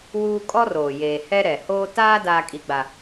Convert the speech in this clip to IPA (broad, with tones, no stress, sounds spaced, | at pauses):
w uː˦ kʼ ɔ˦ r oː˨ j eː˨ h ɛ˦ ɾ ɛ˨ h oː˦ t aː˦ d aː˦ kʼ i˦ ɡ͡b a˦